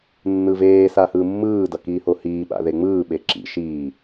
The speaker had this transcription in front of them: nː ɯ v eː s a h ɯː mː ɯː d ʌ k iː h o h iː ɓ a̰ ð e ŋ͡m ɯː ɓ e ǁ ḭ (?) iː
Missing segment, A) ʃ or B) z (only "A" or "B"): A